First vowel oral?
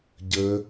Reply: yes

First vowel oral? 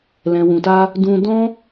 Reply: no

